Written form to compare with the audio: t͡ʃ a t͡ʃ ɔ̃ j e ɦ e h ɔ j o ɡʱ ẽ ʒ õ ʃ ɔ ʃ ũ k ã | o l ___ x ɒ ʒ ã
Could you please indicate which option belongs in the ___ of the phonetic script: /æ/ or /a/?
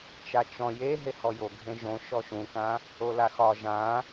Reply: a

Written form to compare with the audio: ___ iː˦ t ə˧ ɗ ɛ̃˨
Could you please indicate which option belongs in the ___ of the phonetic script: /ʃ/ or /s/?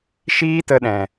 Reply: ʃ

